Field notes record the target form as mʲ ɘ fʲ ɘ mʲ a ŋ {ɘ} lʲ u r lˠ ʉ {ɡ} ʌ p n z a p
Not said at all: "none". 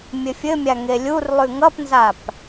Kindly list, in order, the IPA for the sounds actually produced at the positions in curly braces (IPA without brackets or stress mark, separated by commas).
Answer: e, ŋ